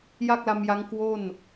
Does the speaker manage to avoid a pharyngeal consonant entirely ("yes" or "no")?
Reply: yes